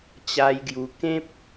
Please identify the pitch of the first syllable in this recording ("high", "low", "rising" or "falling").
high